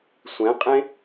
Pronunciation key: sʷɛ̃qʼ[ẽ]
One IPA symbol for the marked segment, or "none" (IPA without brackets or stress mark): ẽ